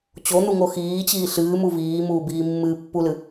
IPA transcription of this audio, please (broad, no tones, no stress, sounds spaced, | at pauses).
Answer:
t͡ɕ o n̪ u ŋ o x iː t͡ɕ iː ɬ ɨː m u v iː m uː b iː mː ɨː pː u l ɨ